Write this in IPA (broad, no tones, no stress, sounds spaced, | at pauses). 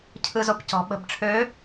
cʰ ɯ z o p c ɔ̤ ɓ ə̤ b ʈ͡ʂʰ ø